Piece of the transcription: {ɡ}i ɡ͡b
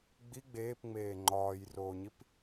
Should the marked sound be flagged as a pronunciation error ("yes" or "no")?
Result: yes